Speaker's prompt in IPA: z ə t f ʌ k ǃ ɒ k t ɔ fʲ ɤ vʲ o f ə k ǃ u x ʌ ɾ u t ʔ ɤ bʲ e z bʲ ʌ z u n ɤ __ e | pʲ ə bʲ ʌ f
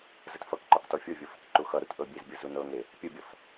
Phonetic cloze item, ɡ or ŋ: ŋ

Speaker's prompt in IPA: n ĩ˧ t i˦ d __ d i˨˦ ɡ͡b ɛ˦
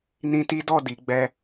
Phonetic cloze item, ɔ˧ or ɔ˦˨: ɔ˦˨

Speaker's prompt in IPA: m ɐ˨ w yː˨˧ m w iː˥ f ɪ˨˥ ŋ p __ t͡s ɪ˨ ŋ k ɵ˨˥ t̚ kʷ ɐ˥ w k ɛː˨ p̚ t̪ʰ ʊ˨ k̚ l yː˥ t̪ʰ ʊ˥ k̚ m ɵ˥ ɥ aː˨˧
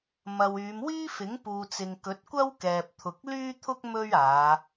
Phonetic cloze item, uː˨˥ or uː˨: uː˨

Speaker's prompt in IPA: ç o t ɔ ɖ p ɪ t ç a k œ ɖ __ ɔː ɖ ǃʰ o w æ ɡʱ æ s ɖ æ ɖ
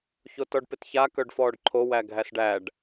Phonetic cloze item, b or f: f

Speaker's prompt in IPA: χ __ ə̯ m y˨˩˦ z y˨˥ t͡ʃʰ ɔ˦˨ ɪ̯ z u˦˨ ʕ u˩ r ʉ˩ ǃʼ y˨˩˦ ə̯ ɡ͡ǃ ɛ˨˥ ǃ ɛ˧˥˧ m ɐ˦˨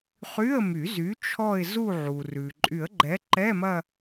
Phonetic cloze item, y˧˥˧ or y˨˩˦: y˧˥˧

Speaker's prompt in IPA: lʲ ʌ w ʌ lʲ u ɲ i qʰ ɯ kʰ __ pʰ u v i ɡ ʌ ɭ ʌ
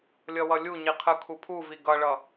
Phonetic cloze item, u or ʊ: u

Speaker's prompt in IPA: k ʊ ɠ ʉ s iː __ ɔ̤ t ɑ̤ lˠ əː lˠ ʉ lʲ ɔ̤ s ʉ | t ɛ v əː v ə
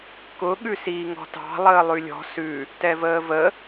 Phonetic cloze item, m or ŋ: ŋ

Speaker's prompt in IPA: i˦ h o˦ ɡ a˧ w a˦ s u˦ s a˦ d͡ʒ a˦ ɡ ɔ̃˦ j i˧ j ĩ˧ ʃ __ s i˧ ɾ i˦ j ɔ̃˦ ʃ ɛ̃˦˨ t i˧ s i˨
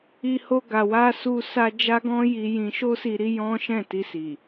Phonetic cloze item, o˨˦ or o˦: o˦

